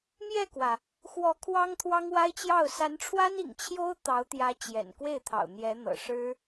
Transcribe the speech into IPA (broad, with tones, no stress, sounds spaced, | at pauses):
m j ɛ˥˩ k w ä˩ | x w ɔ˧˥ kʰ w ɑ˥ ŋ t̪ʰ w ɑ˥ ŋ w a˥ ɪ̯ t͡ɕ j ɑ˥˩ ʊ̯ s a˧˥ n ʈ͡ʂʰ w a˥ n ḭ˨˩ ŋ t͡ɕʰ j o˥ ʊ̯ t̪ ɑ˧˥ ʊ̯ t̪ j ä˧˥ t͡ɕ j ɛ̰˨˩ n k w e˥˩ ɪ̯ t̪ʰ ɑ̰˨˩ ʊ̯ n̪ j ɛ˧˥ n̪ ɤ̰˨˩ ʂ ɻ̩˥